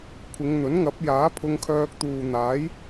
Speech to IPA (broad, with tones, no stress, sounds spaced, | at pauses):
kʷʰ ɪ˨˧ ŋ n̪ ɵ˨˥ n ŋ ɐ˨˥ p̚ j aː˨˥ pʰ ʊ˧ ŋ kʰ œː˧ k̚ t̪ uː˨ n̪ aː˨˥ j